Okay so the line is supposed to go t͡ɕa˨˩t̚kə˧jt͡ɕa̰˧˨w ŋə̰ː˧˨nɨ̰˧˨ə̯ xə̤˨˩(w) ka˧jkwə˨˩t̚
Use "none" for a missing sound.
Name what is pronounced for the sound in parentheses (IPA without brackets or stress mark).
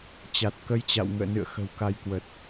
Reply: w